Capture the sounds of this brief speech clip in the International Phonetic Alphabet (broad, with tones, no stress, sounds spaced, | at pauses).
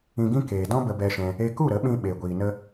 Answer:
ĩ˧ ɡ ĩ˦ k eː˧ d ɔ̃˦ b ə˧ b ɛ˧ ʃ ɛ̃˧ | e˧ k u˦˨ ɾ ə˨˦ ɓ ĩ˧ ɓ e˧ ɡʷ iː˧ n ə˦